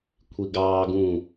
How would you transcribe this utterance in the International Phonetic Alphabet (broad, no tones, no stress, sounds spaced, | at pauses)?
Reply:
kʷʰ i ɡ ɑː ɡ ũ